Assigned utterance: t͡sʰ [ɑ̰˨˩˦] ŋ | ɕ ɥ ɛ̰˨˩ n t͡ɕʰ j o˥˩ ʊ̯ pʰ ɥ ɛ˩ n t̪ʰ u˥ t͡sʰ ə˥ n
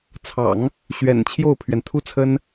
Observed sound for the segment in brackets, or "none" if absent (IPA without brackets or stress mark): ɑ̰˨˩˦